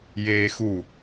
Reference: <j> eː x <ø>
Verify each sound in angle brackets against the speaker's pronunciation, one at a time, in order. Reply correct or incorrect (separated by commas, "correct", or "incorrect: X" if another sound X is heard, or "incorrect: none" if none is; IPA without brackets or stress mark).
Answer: correct, incorrect: u